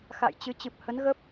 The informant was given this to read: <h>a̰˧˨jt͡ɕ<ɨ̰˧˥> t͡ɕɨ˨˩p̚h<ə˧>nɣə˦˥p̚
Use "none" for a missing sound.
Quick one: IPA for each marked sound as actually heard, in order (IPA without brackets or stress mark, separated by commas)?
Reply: x, ɨ˨˦, ə˨˦